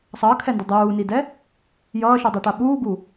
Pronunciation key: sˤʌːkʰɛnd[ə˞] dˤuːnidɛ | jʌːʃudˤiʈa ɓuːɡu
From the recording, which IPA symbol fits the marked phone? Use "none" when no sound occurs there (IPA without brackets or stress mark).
ʌ